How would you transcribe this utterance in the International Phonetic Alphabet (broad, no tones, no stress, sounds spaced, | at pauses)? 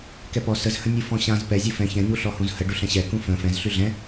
k ɛ p ɔ s ə z h ə̃ nʲ u f ɔ̃ ɕ ã z p ɛ zʲ u f ɛ̃ ç ɛ̃ ɲ u ɬ ɔ h ũ z h ə ɖ u ɬ ɛ̃ ɕ ɛ k ũ f ə̃ f ɛ̃ z ɬ y ɮ ɛ̃